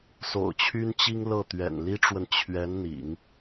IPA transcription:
so̰˨˩ʊ̯t͡ɕʰy˥nt͡ɕi˥ŋ lɤ˥˩t̪ɥɛ̰˨˩n li˥ʈ͡ʂwə˨n t͡ɕʰɥɛ˧˥n n̪ḭ˨˩˦ŋ

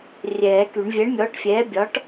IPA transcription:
rʲɛː˨˩˦ky˨˩˦ɳ vʲɛ˨˥ɳmʲɔː˨˥ʈfʲɛː˨˥bʲɒ˨˥ʈ

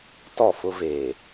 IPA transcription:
tɔ˦˨fʊ˦ veː˨

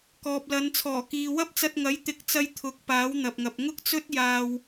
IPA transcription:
kɔː˨p̚lɐ˨˧n t͡sʰɔː˨˩kiː˨ wɐ˥p̚t͡sɐ˧t̚ŋɐ˨˥j t̪ɪ˨˥k̚t͡sɐ˧j t̪ʰʊ˨˥k̚ paː˨˥wn̪ɐ˨p̚ŋɐ˨p̚ ŋʊ˥k̚t͡sɵ˥t̚ jaː˧w

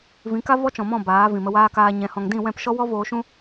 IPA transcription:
vĩ˨˦ka˦ vɔ˦t͡ʃɔ̃˨mɔ̃˦˨ baː˨˦vĩ˨mə˧waː˦ kaː˧ɲɛ̃˨˦hɔ̃˧ŋ dĩ˦˨wɛ̃˦˨pʃɔ˦wɔ˦ voː˧ʃũ˦

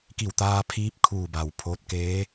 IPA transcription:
ki˧˩wt̪aː˧pʰiː˧p̚ kʰuː˧˩ba˩w pʰoː˧t̚keː˧˥

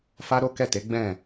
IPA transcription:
fa˦ɾo˦kɛ˦˨te˨˦ ɡ͡bɛ̃˦˨

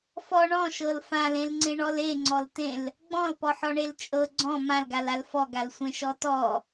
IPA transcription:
fɔ ɳɔ̃ʃɤl fãlẽlŋ͡ǀẽɳɔl eŋ͡ǀɔltẽl | ɡ͡bɔ̃lpɔħɔɳel t͡ʃʼɤ ɡ͡ǀɔ̃ mãlɡalal fɔɡalsʷẽʃɔ tɔ

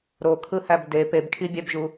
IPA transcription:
ɾokʰɯhæb de pebkʰibʲæbʒu

